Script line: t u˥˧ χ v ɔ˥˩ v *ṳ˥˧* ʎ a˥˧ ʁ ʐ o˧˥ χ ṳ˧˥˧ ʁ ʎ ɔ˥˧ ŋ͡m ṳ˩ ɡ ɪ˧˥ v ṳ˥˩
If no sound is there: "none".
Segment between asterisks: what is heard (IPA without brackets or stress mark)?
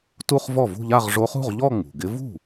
ṳ˥˧